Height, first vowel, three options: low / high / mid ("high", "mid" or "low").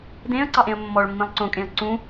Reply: mid